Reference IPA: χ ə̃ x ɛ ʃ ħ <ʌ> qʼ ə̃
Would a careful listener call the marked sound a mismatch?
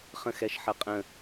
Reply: no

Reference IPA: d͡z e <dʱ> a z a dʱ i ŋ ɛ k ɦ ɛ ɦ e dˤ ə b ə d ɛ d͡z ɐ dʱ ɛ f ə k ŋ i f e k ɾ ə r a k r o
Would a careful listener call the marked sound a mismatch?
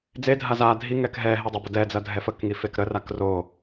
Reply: no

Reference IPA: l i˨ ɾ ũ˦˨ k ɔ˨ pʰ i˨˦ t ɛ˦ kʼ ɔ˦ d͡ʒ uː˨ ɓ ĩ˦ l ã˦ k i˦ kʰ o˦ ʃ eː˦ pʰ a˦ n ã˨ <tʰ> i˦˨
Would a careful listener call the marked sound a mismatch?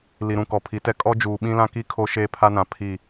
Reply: yes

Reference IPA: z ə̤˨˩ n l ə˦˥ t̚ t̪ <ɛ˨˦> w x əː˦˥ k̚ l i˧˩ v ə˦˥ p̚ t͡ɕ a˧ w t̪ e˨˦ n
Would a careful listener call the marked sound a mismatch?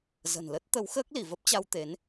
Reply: yes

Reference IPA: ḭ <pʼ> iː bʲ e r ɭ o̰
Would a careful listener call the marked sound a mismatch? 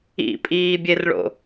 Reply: no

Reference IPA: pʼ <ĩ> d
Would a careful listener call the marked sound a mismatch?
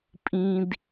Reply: no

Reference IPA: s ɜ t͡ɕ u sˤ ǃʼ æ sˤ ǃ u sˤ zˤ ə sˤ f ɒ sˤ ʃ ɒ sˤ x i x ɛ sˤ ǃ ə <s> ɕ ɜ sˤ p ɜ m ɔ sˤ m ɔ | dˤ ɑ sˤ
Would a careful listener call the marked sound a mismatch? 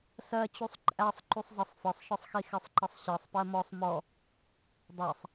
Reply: yes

